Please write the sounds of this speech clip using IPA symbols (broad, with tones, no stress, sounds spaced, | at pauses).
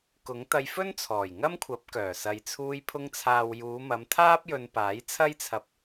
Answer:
k ʊ˨˥ ŋ t̪ ɐ˧ j f ɵ˥ n t͡sʰ ɔː˨˩ j ŋ ɐ˥ m kʷʰ ɐ˨˥ p̚ k œː˨˩ s ɐ˨ j t͡sʰ uː˧ j pʰ ʊ˧ ŋ t͡sʰ aː˨ w j uː˨˧ m ɐ˨˧ m t̪ʰ aː˥ p̚ j ɵ˧ n p aː˨˥ j t͡sʰ ɐ˥ j t͡sʰ ɐ˧ p̚